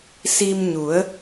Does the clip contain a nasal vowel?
no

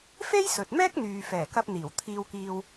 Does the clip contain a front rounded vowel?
yes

